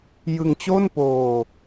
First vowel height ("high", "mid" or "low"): high